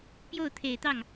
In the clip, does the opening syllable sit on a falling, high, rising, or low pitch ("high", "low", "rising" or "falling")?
falling